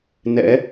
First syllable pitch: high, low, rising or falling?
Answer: rising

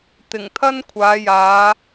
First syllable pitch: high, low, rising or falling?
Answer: low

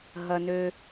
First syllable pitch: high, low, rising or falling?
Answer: high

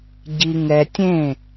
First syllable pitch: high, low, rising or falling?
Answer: low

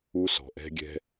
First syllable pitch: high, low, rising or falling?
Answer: high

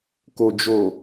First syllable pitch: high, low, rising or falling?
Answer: low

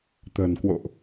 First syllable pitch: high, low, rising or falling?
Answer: low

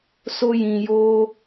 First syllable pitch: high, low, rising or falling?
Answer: high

